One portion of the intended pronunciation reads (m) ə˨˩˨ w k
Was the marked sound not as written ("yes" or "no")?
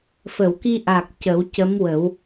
yes